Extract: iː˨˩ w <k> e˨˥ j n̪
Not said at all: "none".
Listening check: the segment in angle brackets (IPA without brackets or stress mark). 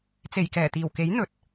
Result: k